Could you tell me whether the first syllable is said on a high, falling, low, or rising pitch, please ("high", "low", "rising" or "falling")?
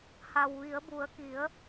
low